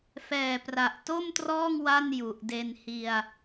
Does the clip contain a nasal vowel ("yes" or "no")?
no